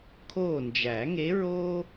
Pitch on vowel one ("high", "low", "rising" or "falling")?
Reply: falling